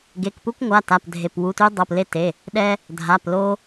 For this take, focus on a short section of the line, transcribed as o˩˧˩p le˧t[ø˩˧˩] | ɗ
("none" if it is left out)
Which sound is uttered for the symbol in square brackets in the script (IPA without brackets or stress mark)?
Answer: e˩˧˩